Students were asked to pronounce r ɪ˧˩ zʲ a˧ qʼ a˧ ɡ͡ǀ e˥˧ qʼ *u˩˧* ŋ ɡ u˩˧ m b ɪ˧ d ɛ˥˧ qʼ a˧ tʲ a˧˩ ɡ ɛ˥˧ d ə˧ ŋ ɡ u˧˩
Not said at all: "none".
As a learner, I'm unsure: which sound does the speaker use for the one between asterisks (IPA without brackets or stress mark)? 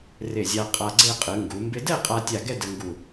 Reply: ɯ˩˧